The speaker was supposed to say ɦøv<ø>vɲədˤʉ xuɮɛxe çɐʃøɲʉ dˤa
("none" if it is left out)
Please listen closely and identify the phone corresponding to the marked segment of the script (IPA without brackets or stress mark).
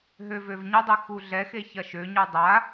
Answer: ø